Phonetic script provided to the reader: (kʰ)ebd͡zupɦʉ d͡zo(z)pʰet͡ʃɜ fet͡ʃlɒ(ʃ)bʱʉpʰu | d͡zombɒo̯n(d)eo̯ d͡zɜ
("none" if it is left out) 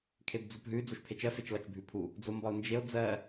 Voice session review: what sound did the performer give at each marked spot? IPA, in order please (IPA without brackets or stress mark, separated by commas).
kʰ, ʃ, t͡ʃ, d͡ʒ